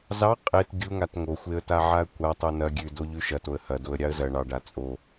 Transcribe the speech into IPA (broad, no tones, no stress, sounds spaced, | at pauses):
z ɑ qʼ e t ɡʲ u ŋ a t ŋ o xʷ e ə̯ t a ʕ a ə̯ kʷ a tˤ u n ɐ ɡʲ ʉ d o ʎ ʉ ʃ ɐ t o ə̯ h ɐ d o ə̯ ɾʲ ɑ ə̯ z ɐ ɳ ɑ ɖ a t͡sʼ o